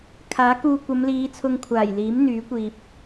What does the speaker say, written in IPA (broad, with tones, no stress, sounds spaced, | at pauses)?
kʰ aː˨˥ k uː˧ kʷ ɐ˨˧ m l iː˨˧ t͡sʰ ʊ˧ ŋ kʷʰ aː˨˩ j l iː˨˥ m n̪ yː˨˥ kʷ iː˨ p̚